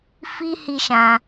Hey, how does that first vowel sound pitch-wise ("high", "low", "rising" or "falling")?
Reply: high